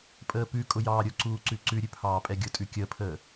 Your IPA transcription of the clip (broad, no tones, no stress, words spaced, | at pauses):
pʼəːpʉkʼʊ jɑːɾʲʊǀuː ǀʉǀʉɾʲʉ pʰɑːpʼɛɡʲʊtʼʉ kʲəːpʰəː